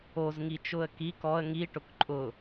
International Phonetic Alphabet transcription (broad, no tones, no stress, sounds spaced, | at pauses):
o z ŋ i t͡ʃ ʊ ə̯ k i k ɔ ə̯ ŋ i ʈ ʊ k ǃʼ ʊ